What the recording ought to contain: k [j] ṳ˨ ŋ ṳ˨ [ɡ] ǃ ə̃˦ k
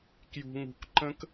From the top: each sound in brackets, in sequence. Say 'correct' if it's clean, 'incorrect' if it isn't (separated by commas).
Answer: correct, incorrect